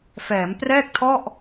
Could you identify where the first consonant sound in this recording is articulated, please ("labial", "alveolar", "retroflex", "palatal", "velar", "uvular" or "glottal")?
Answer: labial